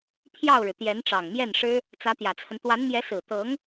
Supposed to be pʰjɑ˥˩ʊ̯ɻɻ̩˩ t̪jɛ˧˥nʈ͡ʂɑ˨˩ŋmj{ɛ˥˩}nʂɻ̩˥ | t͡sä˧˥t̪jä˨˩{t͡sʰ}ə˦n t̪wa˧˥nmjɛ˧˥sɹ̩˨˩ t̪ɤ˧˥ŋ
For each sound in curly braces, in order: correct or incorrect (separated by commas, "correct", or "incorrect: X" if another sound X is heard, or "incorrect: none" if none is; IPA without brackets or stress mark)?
correct, correct